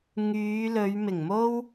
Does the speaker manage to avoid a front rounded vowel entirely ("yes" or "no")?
no